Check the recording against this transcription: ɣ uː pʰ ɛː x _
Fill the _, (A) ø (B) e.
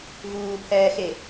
B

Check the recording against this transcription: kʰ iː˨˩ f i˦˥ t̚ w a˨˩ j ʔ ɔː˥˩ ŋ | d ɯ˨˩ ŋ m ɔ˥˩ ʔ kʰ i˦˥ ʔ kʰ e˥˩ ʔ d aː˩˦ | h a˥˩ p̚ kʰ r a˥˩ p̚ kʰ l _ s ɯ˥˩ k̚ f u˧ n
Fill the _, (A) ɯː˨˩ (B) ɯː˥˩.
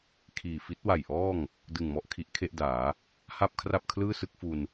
B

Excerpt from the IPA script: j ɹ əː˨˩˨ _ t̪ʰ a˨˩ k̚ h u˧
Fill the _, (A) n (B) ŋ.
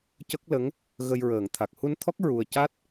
B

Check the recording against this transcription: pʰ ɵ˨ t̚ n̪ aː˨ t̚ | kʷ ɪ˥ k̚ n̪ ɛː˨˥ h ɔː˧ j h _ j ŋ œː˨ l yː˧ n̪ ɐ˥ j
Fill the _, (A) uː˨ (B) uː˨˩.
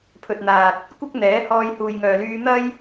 A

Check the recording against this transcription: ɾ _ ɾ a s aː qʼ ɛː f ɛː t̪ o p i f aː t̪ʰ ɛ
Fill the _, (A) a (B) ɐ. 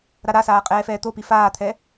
A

